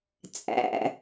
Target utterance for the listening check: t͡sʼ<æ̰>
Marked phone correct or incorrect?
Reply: correct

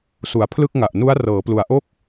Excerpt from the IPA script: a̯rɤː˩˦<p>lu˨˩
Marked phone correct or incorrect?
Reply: correct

